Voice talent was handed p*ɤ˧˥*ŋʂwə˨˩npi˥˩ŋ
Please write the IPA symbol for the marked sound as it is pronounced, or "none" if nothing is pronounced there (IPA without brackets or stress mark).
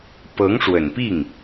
ɤ˧˥